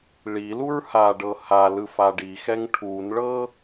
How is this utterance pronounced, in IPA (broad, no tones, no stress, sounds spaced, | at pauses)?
ɭ i l u ɹ h a ɖ ɤ h a l ɯ f a ɖ i x ɛ ŋ ʈʰ u n ɭ ɤ